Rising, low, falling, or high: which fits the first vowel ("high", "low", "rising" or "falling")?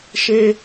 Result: high